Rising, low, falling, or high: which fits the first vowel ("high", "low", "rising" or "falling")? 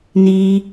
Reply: high